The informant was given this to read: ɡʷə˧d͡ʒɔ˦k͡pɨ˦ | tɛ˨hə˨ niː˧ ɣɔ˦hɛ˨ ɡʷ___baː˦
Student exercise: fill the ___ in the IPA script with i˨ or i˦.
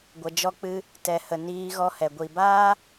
i˨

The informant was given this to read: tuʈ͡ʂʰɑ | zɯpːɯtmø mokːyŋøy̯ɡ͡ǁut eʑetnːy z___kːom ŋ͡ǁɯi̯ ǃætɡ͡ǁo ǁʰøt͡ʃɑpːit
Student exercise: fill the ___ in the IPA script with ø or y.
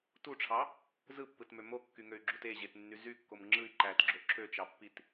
y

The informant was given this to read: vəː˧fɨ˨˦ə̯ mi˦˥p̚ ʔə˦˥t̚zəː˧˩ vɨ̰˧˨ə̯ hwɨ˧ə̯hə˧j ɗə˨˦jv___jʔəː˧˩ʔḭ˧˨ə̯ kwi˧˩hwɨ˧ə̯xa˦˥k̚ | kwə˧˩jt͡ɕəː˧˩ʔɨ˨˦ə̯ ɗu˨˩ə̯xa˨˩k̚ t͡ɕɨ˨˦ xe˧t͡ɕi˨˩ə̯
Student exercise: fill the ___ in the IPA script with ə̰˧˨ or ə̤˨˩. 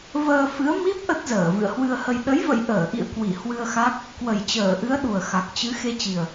ə̰˧˨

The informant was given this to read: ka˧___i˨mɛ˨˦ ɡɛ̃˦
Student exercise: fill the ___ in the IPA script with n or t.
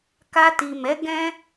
t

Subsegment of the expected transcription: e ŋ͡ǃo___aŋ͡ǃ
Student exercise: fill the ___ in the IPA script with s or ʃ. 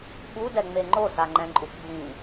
s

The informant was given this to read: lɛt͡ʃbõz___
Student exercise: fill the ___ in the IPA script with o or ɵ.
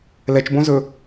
ɵ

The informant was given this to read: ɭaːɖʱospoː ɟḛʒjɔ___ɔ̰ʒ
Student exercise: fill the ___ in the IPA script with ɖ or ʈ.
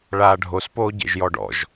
ɖ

